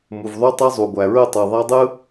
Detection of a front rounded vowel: present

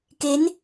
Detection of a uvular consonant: absent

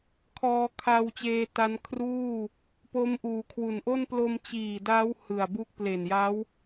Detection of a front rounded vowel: absent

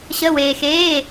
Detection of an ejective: absent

